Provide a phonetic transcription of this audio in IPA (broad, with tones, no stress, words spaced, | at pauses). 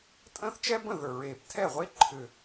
tʼə̃ː˥θt͡ʃɛ˥ bə̃˥˩ðə˞˨˩ ɹeː˨˩ptʰɛ˥˩ʁʷe˥ ǃʰʏ˨˩